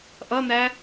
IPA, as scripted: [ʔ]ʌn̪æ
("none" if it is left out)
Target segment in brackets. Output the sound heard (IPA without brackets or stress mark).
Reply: ʔ